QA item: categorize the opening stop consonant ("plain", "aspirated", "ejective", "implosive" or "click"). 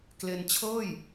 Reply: plain